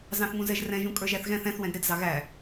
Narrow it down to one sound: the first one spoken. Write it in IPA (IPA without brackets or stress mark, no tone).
z